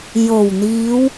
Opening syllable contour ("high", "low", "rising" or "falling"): low